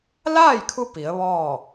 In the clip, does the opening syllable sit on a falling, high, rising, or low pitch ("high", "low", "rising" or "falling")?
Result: falling